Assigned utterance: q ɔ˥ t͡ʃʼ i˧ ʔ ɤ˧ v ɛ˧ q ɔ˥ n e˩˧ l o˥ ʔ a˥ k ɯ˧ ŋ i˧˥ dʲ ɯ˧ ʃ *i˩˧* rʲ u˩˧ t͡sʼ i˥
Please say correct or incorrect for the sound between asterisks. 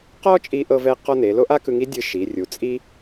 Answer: correct